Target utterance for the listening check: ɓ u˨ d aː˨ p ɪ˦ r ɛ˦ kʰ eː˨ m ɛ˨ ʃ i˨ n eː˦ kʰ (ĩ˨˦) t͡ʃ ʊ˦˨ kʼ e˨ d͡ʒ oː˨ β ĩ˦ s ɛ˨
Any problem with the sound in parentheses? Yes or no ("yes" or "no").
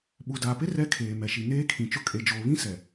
yes